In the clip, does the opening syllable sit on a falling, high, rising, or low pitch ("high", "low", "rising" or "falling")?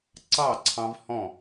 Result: falling